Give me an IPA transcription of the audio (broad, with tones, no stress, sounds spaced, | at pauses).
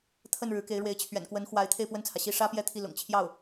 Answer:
t̪ʰ ə˥˩ n ɻ ɻ̩˧˥ k e˧˥ ɪ̯ ɻ w e˧˥ ɪ̯ t͡ɕʰ ɥ ɛ̰˨˩ n k w ə˧˥ n x w a˧˥ ɪ̯ t̪ʰ e˥˧ ɪ̯ p w ə˥˩ n t͡sʰ ä˩ ɕ i˥˩ ʂ ä˥ p j ɛ˥˧ t̪ʰ i˥˩ l ʊ̰˨˩ ŋ t͡ɕʰ j ɑ˥˩ ʊ̯